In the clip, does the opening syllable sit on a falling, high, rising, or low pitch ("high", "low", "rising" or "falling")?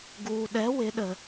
low